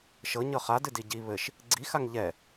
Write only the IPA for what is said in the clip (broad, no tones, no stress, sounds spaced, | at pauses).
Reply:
ʃ ɤ ɲ ɤ χ a d ɨ d i ɟ i β ɘ ʃ | ɡ͡ǀ i x a ŋ ʎ ɛ